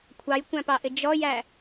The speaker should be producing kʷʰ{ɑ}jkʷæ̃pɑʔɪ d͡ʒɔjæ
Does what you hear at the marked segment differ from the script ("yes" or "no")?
no